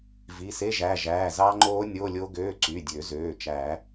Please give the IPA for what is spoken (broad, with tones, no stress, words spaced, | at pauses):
vi˩˧˩se˧˥˧ʒæ˩˧˩ ʒæː˩˧˩zɑ˦˥ŋ͡ǃoː˦˥ nʲo˧˥˧lʲo˦˥ɡøː˧˥˧ ǀy˩˧˩dʲø˨˩˦zøː˩˧˩t͡ʃæ˨˩˦